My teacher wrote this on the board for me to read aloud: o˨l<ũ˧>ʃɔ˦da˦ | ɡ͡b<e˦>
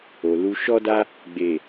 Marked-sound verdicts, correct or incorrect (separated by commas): incorrect, incorrect